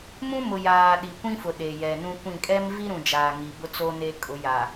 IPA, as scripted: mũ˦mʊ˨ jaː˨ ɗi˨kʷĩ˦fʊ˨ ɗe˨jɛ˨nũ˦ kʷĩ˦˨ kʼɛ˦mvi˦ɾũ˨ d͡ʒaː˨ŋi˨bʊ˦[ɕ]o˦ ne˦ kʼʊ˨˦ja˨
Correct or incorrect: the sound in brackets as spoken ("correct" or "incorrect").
incorrect